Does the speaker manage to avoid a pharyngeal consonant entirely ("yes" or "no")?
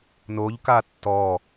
yes